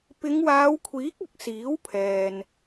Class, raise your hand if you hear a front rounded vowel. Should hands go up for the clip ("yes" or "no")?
no